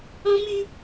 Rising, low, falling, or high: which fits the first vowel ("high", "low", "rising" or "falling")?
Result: high